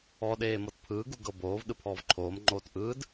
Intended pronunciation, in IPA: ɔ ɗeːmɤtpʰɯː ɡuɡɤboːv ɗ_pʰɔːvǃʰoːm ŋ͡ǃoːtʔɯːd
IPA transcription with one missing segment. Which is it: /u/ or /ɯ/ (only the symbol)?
ɯ